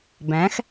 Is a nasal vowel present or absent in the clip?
present